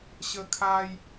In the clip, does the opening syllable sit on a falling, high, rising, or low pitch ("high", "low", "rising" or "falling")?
high